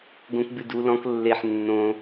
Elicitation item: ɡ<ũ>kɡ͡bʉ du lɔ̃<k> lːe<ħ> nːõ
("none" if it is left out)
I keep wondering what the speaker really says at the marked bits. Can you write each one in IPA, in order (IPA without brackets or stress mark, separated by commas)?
õ, k, ħ